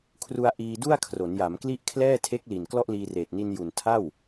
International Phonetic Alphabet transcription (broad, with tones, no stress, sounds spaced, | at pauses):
kʰ r u˧ a̯ ʔ iː˧ d u˥˩ a̯ kʰ r o˩˦ n j a˩˦ m k l i˥˩ ʔ kʰ l ɛː˥˩ tʰ e˦˥ k̚ l i˨˩ n k l ɔ˥˩ ʔ l iː˧ r eː˨˩ t̚ n i˧ n j u˨˩ n tʰ a˥˩ w